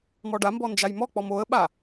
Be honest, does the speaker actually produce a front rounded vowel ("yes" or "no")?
no